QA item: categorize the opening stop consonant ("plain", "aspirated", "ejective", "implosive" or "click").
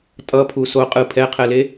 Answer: ejective